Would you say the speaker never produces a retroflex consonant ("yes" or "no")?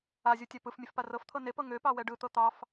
no